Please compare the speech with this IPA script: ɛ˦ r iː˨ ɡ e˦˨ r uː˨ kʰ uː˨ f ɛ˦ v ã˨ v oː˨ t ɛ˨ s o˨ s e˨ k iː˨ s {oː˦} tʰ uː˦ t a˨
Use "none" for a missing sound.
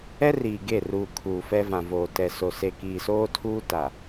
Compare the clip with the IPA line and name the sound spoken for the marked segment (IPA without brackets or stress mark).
oː˦